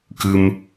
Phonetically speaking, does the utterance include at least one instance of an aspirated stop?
no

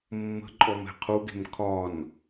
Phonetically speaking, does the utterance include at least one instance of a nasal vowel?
no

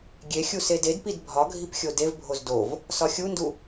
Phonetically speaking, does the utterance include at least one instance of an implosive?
no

